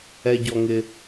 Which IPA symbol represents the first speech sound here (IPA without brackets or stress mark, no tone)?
ɛ